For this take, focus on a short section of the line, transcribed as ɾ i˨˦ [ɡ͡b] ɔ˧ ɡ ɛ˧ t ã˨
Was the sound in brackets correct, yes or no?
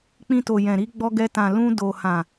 yes